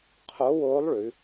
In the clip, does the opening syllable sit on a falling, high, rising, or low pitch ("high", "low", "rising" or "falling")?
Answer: rising